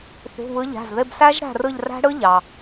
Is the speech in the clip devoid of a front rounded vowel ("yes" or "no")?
yes